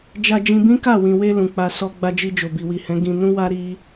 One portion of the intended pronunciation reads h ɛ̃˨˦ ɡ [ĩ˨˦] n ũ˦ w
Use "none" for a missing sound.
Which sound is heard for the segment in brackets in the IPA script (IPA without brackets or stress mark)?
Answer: ĩ˧